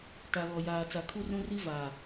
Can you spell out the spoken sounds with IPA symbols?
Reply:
t a˨ ɣ ɔ˨ j aː˨ t͡s a˨ kʰ u˦ r ũ˦ r i˦ v aː˨

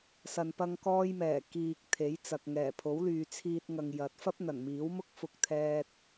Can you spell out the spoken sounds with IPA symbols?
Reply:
s ɐ˨ n p ɐ˧ ŋ k ɔː˧ j m ɛː˨˩ k iː˨ k̚ t̪ʰ e˨˥ j t͡s ɐ˨ k̚ ŋ ɛː˨˩ pʰ o˨˥ w l yː˨ t͡sʰ iː˧ t̚ ŋ ɐ˨ ŋ j ɐ˨˥ t̚ f ɐ˥ p̚ n̪ ɐ˨˩ n m iː˨˥ w m ʊ˥ k̚ f ʊ˧ k̚ t̪ʰ ɛː˧ t̚

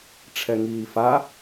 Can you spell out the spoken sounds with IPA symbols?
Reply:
ʈ͡ʂʰ ɛ ŋ iː f a

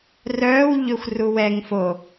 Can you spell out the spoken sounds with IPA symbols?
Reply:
r œː w ʎ ø xʷ r u w ɛ ŋ f o

